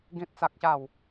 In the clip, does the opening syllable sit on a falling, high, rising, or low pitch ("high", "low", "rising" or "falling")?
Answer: high